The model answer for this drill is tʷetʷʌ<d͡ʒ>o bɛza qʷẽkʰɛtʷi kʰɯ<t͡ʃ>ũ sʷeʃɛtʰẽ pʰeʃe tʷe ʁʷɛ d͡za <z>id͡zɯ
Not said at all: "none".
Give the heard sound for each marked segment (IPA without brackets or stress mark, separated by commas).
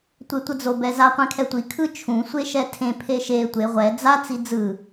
d͡z, t͡ʃʰ, t͡s